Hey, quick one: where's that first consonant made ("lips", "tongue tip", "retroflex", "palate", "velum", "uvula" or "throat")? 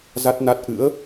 tongue tip